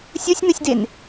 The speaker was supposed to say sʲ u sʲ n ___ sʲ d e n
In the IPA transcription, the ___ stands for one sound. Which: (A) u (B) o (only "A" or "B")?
A